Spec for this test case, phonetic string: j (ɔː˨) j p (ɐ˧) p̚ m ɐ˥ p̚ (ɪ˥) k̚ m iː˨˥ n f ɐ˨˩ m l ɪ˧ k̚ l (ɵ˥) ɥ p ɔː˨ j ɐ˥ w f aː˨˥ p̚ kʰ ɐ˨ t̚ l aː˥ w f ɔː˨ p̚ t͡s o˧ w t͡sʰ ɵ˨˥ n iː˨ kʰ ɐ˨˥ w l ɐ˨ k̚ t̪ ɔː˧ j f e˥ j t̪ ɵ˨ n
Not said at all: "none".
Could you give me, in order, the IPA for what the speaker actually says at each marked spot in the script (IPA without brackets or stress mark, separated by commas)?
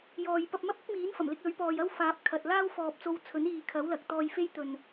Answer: ɔː˨, ɐ˧, ɪ˥, ɵ˨˥